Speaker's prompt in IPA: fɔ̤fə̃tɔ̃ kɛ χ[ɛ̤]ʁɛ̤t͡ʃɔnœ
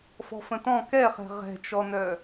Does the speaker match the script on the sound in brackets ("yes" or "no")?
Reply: yes